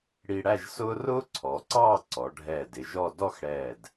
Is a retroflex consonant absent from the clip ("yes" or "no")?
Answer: no